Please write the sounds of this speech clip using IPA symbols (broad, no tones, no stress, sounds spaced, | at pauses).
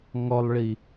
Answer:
ŋ ɔ lˠ ɭ i